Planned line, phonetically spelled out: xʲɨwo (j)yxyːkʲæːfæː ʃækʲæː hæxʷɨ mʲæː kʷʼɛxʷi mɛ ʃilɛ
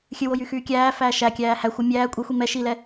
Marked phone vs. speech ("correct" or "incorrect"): correct